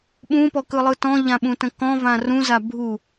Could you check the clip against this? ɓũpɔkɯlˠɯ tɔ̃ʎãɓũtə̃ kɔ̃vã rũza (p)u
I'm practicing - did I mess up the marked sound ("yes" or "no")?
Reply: yes